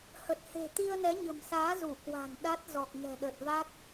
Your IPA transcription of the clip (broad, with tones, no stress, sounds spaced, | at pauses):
h ə˨˩ t̚ h e̤˨˩ t̪ i˧ ə̯ n ɛ˨˦ ɲ ə̤˨˩ m s aː˨˦ z u˧˩ k w a̤˨˩ n ɗ a˦˥ t̚ z ɔ˨˩ k̚ ŋ ɛ̤˨˩ ɗ ə˨˩ t̚ v a˦˥ k̚